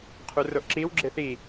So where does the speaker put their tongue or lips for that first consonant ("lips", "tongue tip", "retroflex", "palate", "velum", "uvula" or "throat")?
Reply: uvula